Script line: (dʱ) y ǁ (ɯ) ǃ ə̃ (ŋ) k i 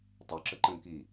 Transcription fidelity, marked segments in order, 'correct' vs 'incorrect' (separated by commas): incorrect, incorrect, correct